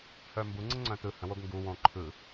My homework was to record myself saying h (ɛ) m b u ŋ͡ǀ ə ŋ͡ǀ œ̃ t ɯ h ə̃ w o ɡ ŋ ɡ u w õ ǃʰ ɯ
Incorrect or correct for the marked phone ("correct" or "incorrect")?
incorrect